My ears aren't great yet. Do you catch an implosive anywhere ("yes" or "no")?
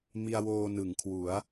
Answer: no